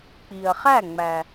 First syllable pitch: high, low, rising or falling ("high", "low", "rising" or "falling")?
low